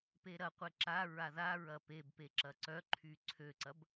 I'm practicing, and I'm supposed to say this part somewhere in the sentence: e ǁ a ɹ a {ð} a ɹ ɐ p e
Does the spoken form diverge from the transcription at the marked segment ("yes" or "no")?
no